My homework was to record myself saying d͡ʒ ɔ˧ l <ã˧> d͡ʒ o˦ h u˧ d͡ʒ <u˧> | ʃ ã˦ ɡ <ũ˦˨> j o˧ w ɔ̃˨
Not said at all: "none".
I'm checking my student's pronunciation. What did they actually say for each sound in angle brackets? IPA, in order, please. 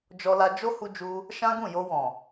a˧, u˧, ũ˦˨

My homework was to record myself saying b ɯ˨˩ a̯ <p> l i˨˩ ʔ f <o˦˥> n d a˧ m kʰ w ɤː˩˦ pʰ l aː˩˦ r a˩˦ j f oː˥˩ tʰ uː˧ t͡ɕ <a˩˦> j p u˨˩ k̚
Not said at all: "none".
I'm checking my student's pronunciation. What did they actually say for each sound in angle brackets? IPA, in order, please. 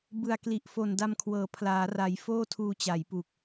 k, o˨˩, a˩˦

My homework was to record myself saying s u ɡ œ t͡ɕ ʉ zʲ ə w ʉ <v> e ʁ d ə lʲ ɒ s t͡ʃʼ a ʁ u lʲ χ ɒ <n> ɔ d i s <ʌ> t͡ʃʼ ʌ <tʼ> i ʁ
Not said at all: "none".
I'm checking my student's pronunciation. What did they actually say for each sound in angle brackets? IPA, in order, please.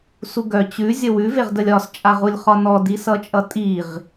v, n, ʌ, tʼ

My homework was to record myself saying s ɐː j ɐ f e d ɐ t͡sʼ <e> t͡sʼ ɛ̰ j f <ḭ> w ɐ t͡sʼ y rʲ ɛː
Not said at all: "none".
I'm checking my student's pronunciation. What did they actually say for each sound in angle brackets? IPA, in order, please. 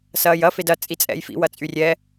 i, ḭ

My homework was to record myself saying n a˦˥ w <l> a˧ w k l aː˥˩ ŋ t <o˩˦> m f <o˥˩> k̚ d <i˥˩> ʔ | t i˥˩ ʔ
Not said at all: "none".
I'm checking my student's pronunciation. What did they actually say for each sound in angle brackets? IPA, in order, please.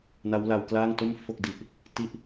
l, o˥˩, o˥˩, i˦˥

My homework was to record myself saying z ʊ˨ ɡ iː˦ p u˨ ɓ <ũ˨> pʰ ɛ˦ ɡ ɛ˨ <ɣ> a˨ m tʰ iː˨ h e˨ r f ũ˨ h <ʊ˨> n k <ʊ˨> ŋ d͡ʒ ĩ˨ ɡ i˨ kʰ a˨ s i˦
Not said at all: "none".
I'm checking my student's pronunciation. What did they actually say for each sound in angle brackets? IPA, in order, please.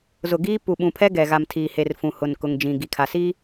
ũ˨, ɣ, ʊ˨, ʊ˨

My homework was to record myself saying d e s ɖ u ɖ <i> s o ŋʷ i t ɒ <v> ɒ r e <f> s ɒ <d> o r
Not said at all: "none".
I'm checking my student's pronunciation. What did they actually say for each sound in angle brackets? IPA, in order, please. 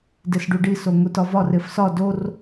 i, v, f, d

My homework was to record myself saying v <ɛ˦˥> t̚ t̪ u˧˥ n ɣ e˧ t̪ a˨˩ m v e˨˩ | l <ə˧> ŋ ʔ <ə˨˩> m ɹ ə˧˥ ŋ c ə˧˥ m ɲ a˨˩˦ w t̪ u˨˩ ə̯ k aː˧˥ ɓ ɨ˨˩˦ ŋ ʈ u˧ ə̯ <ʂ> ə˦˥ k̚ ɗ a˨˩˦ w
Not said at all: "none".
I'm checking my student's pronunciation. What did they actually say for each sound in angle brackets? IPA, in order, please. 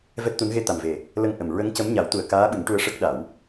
ɛ˦˥, ə˧, ə˨˩, ʂ

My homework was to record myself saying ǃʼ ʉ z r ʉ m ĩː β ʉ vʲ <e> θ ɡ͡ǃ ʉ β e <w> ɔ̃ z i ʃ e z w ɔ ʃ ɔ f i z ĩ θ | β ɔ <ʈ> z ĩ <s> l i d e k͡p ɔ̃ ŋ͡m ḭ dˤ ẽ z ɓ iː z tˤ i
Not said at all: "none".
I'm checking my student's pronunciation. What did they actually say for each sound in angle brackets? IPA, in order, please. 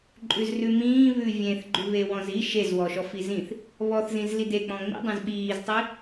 ẽ, w, θ, z

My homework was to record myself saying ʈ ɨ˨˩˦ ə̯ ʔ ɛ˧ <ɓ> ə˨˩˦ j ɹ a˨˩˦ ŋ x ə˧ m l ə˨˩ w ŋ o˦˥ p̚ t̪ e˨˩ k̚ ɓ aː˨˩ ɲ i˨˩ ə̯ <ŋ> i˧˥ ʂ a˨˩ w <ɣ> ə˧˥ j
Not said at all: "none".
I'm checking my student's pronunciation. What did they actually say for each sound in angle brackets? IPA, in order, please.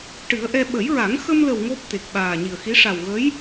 ɓ, x, ɣ

